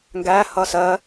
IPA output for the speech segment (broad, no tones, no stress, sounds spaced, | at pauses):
ŋ ɡ æ h ʌ s ɜ